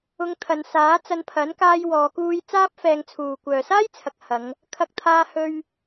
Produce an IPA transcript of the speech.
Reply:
ʊ˧ ŋ t̪ʰ ɐ˨˧ n s aː˨˥ t͡s ɐ˧ n pʰ ɐ˨˥ n k aː˧ j w ɔː˨˧ k uː˧ j t͡s aː˥ p̚ f ɛː˧ ŋ t͡sʰ uː˨ kʷ œː˨ s aː˥ j t͡sʰ ɐ˨ k̚ h ɐ˨˧ ŋ | kʰ ɐ˧ k̚ t̪ʰ aː˧ h ɵ˧ ɥ

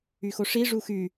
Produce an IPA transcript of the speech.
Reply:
y x o ʂ i ʐ u x y

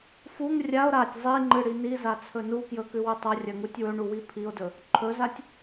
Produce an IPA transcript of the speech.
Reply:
f u ŋ rʲ a o̯ ɾ a tʲ zˤ i ŋ͡ǃ ɨ ɽ i n i z a t͡sʰ ɵ n u k j ɵ k ʉ w ɨ tˤ ɐ rʲ ɐ ŋ u tʲ w ɵ ɳ u w i pʰ i o̯ d ɵ | ǃʰ ɵ z a tʲ

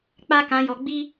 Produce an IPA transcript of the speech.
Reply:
k͡p a˦ k ã˧ j ɔ˧ ɡ͡b i˦

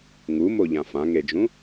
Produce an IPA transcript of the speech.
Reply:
ŋ u m o ʎ ã f ã ŋ e d͡ʒ ũ

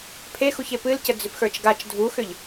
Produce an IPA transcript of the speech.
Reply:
pʰ e x u ç e p ɨ l c ə d͡z ʏ p x ə˞ t͡ʃ ɡ a t͡ʃ dʱ u x ʏ ʎ

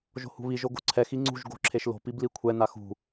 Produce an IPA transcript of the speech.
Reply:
ʒ o̤ h ṳ β i ʒ o ɡ o̤ ǀʰ ɛ x i ŋ͡ǀ ṳ ʒ ɡ o̤ ǁʰ e ʃ l o̤ p i b l i kʷʰ ɛ n a x ṳ

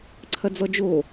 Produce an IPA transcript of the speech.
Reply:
ǀʰ ɐ d͡z ɔ d͡ʒ o

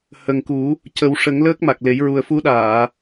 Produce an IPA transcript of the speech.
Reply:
h ə˨˩ ŋ k u˨˩˦ | c ə˨˩˦ w ʂ ə˨˩˦ ŋ l əː˦˥ k̚ m a˨˩ k̚ l e˨˩˦ j ɹ u˨˩ ə̯ f u˧˥ ɗ aː˨˩˨

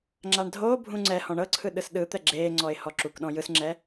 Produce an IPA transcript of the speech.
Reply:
ŋ͡ǁ a ɳ dʱ oː bʱ ũ ŋ͡ǀ ɛ h ɔ̃ ɳ ɤ ǀʰ ɯ ɗ ɯ s ɗ ɯ t̪ ɛ ɡ͡ǁ eː ŋ͡ǀ ɔ ɪ̯ h ɔ ǁ u k ɗ ɔ̃ j ɯ s ŋ͡ǁ ɛː

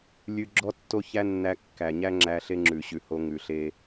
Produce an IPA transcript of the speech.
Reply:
lʲ ʉ˧ ɡ͡ǁ ɔ˦ tː o˦ ç æ˦ nː æ˧ kː æ˨ ɲ æ˦ ŋ͡ǁ æ˧ ɬ e˦ ŋ͡ǁ ʉ˨ ɕ ʉ˨ h o˧ ŋ ʉ˨ ɬ e˧

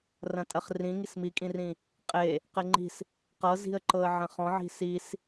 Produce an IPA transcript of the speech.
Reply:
r ɐ̃ tʼ ɐ χ r ĩ ŋ i s m i kʼ ĩ r ĩ | qʼ e | q e ŋ͡ǃ i̤ s | q ɤ z i̤ ə̯ ǃ ɤ ə̯ ʕ ɐ̃ χ ɔ̃ ʕ i̤ s i s

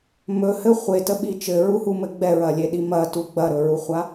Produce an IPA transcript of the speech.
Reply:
m ɵ h ɘ χʷ e t ə ɓ i t͡ʃ ɘ ɹ u h u m ɘ ɡ͡b ɛ ɹ ɐ lʲ e ɗ i m ɐ t u ɡ͡b ɐ ɾ ɵ ɹ u χʷ a

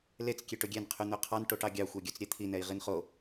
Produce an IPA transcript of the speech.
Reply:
l e t͡s kʲ e ʈ ɵ ɡʲ ɛ n qʰ y n̪ ø qʰ ɑ n ʈ o ʈ ɑ ɡʲ ɑ xʷ ɑ ɡʲ ɵ t͡s ɾʲ ɛ t̪ʰ i n ɛ i̯ ʁ i n χ o

